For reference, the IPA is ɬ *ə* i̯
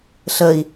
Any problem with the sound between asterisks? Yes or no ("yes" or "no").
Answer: no